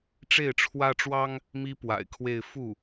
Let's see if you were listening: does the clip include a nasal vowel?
no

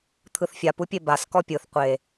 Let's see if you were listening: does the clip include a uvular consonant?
yes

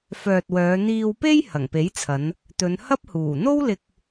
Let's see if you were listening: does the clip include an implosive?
no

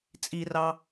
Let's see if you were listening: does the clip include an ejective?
yes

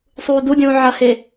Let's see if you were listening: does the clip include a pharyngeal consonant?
yes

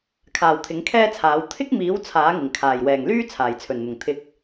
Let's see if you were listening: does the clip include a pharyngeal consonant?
no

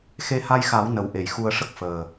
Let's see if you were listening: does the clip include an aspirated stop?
no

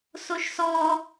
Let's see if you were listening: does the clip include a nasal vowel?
no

